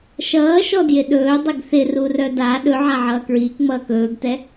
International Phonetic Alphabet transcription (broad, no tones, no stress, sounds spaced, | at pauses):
ʃ ʌː ʃ ɔ d j ɪ ɗ ɵː dˤ e ɡ θ ɪ r u r œ d a ɗ ɵ ʕ a ʕ ʌː k ɹ iː k ŋ͡m ʌː k ɵː ɡ t ɛ